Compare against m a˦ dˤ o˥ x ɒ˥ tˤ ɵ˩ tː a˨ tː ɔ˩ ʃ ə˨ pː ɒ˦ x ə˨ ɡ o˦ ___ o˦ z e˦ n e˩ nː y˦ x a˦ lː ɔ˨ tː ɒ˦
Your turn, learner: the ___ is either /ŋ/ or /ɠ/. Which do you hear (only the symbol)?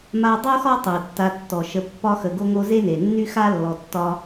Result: ŋ